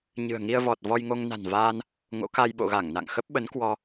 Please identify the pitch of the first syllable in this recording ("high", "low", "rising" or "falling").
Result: low